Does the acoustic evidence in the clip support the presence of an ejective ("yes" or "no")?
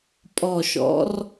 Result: yes